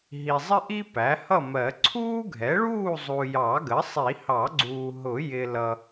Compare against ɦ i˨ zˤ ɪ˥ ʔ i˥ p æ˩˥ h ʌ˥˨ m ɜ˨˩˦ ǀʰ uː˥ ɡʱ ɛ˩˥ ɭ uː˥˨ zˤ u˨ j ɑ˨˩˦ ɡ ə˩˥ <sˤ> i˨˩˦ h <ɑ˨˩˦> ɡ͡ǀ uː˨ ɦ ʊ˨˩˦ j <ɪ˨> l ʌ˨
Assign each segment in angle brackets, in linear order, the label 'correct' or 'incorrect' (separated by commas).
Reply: correct, correct, correct